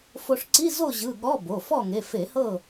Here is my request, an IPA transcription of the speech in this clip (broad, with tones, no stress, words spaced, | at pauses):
fo˧ʂǀi˧˥˧ zo˥˨ʑɯ˩˧˩ ɠɔ˧˥˧bo˩˧˩ fɔ˥˨ŋe˩˧˩ fe˧˩˧hɤ˥˨